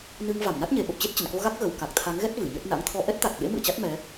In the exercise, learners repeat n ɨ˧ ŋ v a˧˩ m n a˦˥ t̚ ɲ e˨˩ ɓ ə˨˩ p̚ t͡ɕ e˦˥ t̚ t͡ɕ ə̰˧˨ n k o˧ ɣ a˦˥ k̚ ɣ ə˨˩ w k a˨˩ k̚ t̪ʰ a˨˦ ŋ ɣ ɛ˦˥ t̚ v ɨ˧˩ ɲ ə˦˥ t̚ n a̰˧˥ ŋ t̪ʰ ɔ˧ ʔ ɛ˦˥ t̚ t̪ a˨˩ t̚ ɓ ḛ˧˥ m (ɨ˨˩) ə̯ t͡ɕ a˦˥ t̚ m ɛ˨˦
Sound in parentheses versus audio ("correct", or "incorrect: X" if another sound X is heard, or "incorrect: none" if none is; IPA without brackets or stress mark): incorrect: ɨ̰˧˨